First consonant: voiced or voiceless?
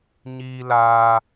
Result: voiced